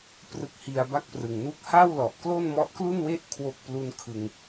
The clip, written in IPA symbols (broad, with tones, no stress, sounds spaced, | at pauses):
p r ɯ˦˥ k̚ h i˧ a̯ b a˥˩ k̚ p r ɯ˨˩ ŋ n uː˥˩ k̚ h a˥˩ w l ɔ˨˩ ʔ k l o˥˩ n m ɔ˦˥ ʔ k l u˥˩ n w e˥˩ ʔ kʰ w o˥˩ k̚ p l u˥˩ n kʰ ɯ˧ ŋ